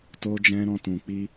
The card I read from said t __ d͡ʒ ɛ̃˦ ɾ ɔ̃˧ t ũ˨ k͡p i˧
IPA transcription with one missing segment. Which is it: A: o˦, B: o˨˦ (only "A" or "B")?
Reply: A